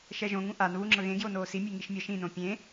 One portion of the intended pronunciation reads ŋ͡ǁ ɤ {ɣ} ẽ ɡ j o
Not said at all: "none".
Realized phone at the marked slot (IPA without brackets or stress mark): ɣ